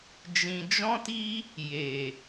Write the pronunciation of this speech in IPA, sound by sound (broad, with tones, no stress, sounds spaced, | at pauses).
d͡ʒ ĩ˧ d͡ʒ ɔ̃˦ t i˦ | j e˨